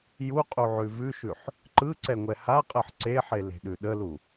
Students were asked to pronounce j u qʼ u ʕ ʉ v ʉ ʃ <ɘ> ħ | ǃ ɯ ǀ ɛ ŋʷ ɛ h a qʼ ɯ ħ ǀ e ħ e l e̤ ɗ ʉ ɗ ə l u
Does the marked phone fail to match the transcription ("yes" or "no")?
yes